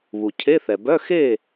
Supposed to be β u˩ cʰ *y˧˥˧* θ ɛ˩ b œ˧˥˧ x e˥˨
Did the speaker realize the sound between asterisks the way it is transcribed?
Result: no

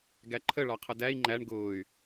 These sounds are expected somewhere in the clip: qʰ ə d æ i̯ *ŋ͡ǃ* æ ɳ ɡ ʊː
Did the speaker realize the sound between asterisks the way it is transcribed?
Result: yes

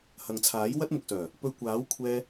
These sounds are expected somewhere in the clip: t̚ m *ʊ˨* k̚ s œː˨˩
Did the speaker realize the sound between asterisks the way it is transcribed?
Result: yes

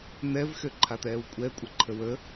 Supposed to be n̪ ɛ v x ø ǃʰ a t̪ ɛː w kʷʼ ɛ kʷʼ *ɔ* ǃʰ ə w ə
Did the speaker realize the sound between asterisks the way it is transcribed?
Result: no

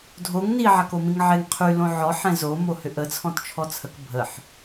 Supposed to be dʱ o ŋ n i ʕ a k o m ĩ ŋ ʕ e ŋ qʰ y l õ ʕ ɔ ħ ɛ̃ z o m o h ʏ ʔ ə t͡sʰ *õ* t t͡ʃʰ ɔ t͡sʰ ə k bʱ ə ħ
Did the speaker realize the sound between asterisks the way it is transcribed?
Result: no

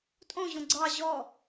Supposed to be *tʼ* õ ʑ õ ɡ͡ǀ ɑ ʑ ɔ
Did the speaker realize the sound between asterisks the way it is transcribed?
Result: yes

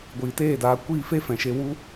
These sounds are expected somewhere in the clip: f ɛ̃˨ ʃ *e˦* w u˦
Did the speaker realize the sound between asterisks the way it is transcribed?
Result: no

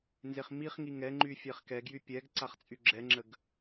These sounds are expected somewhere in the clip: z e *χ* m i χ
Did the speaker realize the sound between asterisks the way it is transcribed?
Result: yes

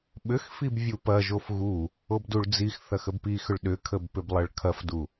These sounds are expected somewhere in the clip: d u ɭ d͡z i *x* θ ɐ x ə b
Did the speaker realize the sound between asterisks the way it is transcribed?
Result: yes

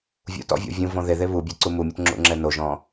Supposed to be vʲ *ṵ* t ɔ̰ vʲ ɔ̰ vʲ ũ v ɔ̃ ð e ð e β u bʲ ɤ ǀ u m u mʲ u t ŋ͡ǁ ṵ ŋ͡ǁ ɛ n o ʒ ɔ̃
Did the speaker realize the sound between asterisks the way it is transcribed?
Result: yes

